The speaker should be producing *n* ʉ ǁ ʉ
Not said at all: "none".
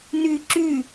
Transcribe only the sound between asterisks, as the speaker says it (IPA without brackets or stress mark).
n